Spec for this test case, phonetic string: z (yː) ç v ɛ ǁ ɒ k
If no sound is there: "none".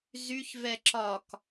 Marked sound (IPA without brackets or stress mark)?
y